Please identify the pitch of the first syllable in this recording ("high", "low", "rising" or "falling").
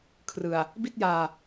low